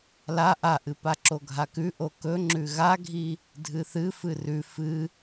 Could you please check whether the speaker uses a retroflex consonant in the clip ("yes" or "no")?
no